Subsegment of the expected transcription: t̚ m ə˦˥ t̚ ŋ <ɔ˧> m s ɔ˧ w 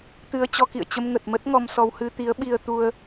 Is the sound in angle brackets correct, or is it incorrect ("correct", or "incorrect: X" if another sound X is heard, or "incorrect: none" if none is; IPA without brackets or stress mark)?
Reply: correct